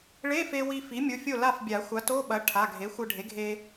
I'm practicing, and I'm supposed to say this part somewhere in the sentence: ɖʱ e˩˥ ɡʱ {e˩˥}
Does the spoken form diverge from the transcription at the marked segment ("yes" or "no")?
yes